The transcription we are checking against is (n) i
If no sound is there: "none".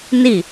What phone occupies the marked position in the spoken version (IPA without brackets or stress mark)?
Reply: n